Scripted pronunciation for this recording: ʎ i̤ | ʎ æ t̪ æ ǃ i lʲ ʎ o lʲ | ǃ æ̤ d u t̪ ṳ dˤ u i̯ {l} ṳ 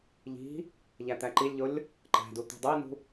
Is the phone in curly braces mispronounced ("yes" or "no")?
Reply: yes